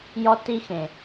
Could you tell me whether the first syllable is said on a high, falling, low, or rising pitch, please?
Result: high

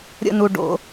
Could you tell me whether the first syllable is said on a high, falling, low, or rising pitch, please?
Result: falling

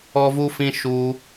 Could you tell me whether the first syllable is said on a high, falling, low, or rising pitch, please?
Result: high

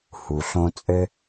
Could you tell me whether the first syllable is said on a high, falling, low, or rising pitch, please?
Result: low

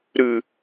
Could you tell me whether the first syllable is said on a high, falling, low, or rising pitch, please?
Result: low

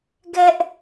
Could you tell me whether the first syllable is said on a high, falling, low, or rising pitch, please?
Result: high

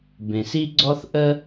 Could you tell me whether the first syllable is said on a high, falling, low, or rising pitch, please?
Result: low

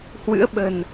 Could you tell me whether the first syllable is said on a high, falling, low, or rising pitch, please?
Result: rising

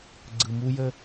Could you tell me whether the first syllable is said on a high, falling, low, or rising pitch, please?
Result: low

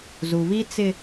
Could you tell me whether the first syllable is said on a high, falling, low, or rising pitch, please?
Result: low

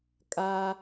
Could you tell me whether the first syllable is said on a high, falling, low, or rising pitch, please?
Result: high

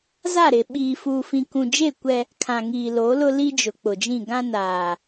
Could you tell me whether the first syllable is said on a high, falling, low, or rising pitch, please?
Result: falling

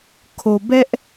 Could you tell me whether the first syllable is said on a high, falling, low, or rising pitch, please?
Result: low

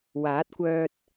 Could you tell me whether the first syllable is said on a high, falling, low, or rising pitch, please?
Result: rising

